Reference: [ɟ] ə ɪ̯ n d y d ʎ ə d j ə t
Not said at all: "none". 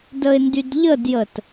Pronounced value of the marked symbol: d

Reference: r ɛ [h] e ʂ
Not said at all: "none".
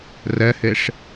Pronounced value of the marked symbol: h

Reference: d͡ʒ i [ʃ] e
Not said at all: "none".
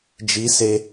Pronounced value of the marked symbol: s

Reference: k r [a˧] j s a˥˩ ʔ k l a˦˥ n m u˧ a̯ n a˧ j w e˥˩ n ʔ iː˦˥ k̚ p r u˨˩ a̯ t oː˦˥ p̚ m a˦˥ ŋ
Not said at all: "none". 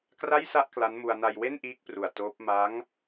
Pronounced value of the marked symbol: a˥˩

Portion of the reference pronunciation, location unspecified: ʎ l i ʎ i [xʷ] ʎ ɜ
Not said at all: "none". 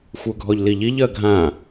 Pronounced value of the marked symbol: none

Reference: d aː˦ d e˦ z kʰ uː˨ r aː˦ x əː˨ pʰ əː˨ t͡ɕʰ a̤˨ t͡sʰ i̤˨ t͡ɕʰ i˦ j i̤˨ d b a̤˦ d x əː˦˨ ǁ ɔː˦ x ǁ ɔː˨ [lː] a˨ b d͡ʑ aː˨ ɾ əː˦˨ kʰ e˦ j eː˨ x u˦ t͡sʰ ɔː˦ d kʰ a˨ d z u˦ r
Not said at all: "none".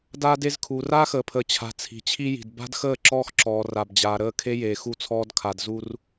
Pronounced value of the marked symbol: r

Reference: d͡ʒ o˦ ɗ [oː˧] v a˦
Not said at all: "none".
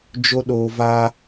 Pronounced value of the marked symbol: oː˧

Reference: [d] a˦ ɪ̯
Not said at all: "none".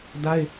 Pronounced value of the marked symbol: d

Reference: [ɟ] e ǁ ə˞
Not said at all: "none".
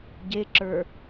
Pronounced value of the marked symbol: ɟ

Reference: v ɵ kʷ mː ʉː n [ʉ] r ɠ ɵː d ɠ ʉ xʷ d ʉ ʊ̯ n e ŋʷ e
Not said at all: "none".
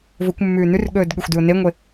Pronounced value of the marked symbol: ʉ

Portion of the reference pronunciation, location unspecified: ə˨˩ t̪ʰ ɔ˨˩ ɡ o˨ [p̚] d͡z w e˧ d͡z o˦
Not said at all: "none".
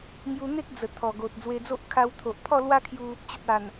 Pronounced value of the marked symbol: t̚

